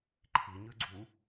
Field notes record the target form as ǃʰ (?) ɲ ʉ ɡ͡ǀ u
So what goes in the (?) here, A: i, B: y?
A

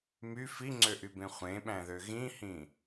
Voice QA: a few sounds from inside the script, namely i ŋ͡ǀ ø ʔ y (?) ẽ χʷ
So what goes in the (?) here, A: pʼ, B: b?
B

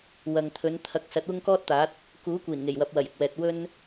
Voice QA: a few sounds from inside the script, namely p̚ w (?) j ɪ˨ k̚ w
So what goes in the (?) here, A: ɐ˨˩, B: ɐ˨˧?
A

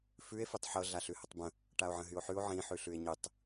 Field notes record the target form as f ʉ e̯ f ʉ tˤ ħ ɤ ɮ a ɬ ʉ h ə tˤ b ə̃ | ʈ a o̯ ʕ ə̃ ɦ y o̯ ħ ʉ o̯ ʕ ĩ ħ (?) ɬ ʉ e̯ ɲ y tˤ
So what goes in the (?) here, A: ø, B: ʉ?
B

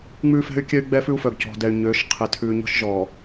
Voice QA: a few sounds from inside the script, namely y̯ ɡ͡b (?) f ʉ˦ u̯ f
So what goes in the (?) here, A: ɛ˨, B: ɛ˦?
B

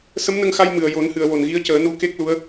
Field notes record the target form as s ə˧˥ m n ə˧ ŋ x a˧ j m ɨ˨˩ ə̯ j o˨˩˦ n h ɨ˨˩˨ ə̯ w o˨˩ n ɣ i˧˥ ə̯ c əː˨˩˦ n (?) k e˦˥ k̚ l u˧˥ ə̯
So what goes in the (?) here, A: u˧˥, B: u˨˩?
A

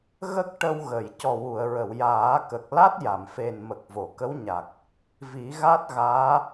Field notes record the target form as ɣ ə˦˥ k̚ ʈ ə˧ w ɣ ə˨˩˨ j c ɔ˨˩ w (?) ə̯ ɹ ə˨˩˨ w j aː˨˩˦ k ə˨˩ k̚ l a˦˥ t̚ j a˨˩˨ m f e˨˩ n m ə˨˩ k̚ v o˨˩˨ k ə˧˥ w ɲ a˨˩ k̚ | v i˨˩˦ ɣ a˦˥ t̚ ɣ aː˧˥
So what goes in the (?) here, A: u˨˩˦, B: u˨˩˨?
B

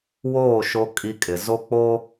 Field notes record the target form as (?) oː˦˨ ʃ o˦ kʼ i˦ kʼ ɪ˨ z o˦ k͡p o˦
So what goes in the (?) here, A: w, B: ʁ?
A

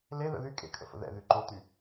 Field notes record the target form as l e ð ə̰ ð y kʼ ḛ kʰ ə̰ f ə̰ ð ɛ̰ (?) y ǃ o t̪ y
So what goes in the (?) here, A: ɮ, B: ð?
B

